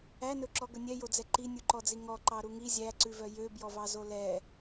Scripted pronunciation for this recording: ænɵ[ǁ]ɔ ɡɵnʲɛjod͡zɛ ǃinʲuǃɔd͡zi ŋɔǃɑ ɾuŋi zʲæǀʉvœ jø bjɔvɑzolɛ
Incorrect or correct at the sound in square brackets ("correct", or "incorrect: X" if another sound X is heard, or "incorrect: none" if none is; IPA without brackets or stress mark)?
correct